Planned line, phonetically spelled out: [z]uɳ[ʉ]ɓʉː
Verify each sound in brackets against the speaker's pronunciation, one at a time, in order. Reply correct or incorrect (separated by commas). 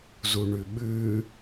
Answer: correct, correct